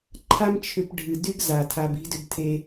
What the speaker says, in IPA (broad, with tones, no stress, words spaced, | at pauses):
ǃʰa˦mt͡ʃʰʏ˧pɖʱɨ˨ dy˦ɡza˨ tʰa˧bi̤˦dʏ˦btʰe˦